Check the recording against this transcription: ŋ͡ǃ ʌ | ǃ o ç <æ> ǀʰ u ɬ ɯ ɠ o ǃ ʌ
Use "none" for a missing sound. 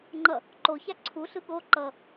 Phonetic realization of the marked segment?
a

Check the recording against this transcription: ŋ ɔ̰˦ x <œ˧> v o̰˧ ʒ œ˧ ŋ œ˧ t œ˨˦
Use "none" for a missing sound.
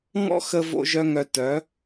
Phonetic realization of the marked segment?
ə˧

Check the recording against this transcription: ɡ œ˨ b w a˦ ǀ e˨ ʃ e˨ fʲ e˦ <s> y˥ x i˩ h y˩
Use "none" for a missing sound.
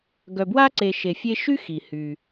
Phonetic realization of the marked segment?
ʃ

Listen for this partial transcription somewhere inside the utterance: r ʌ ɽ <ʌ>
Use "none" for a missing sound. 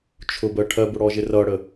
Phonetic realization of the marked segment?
ə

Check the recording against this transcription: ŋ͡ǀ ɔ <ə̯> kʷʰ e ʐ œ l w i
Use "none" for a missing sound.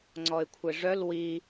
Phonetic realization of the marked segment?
ɪ̯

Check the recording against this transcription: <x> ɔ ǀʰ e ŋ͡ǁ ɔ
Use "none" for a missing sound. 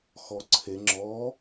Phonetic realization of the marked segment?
x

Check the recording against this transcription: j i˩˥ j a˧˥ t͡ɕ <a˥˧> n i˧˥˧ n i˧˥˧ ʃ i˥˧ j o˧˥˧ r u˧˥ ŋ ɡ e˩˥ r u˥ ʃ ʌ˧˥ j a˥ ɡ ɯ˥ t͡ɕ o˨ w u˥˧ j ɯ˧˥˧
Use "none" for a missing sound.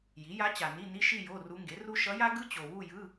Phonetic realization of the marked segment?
a˨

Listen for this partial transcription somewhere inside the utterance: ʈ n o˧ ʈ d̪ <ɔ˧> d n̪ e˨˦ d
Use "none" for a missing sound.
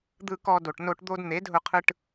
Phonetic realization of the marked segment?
o˧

